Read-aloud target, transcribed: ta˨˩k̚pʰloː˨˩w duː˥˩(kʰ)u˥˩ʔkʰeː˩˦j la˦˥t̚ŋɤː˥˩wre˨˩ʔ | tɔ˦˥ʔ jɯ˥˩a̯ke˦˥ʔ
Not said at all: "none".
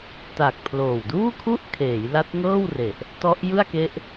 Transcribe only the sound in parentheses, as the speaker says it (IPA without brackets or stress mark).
kʰ